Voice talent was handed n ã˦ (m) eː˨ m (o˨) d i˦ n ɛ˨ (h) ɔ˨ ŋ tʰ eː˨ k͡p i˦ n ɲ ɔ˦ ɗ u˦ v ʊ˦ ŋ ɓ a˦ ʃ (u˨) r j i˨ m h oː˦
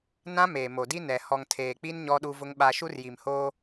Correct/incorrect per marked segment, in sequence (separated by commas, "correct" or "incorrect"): correct, correct, correct, incorrect